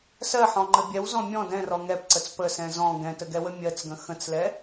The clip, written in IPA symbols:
s ɜ ħ ɔ̃ ŋ͡ǃ ə bʲ ɛ w z ɔ̃ mʲ ɔ̃ d ɛ̃ r ɔ ŋ ɛ p ǀ ə t͡s p ə s ɛ̃ z ɔ̃ ɡ ɛ̃ t ə ɡ ɛ w ə mʲ ɜ t͡s ɡ ə̃ x ə̃ t͡s l ɛ

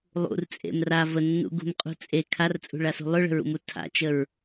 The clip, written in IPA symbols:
lˠ ṵ r t͡sʼ ḛ m r a v ə nː ṵ ɡ ṳ m qʼ ṳ t͡sʼ e kʰ a r t͡sʼ ṳ ɭ a s ṳ lˠ ɵ ɭ ə̤ ɹ ṵ m u tʰ a̰ t͡ʃ ə ɹ

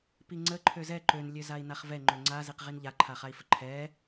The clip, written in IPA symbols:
p i ŋ͡ǀ ə ǃʰ ø z ɛ ǃ ø n lʲ ø z a i̯ n a χ v ɛ ŋ͡ǃ ø ŋ͡ǀ a z i q ʁ i n ʎ a ǃʰ a χ a i̯ f ə ǃʰ ɛ

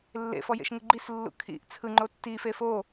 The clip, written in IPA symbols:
lː ḛ f ɔ j ḛ ʃ ŋ ɯ ɡ͡ǃ i s lː ṵ kʰ ḭ ʔ t͡sʰ ɯ ŋ͡ǃ o tː i f e f o

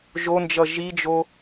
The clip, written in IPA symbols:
ʒ o n d͡ʒ ʌ ʒ i d͡ʒ o

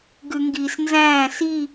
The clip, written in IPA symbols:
ɡ ʉ ŋ ɡ iː s n z æ̃ː s i

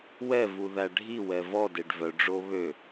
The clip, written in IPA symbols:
w ɛ v u ð æ ɖʱ i w ɛ v ɔ d e ɖ v œ ɖ͡ʐ o β ø

